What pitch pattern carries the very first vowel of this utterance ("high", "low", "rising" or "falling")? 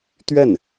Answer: falling